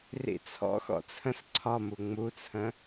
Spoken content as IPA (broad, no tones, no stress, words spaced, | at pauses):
rḭt͡sʰɔ̰xɔ̰ t͡sʰə̃s ǀʰɒmu ŋ͡mut͡sʰə̃